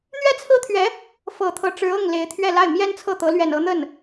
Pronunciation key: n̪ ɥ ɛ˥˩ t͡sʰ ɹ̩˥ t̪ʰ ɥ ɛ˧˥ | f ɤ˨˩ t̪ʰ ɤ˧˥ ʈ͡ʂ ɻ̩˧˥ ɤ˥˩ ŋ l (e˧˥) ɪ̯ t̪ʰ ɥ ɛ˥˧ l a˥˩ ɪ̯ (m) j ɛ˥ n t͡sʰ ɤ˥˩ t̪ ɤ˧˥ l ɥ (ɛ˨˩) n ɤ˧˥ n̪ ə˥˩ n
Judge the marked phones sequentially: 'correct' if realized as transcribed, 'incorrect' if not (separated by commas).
correct, correct, correct